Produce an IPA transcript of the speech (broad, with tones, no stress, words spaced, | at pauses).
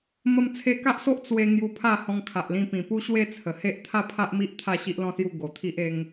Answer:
mə˧mt͡sʰe˧ka˦ʔso˦ʔ t͡swe˧ ŋju˧pʰa˥˧ hɔ̃˧ŋkʰa˨ʔlĩ˧pĩ˨˩ pu˦ɕwe˦t͡sʰə˨˩he˦ʔ t̪ʰa˥˧pʰa˦ʔmi˦ʔ t̪ʰa˥˧ ɕi˦ʔlɔ̃˥˧sju˥˧ ɡo˨˩t̪ʰi˦ʔe˦ŋ